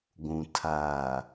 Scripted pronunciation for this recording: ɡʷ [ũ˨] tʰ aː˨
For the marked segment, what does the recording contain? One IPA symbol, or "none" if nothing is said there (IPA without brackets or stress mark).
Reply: ũ˨